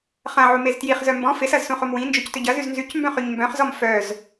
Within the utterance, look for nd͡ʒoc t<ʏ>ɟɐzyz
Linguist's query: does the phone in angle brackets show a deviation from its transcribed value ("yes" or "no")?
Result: no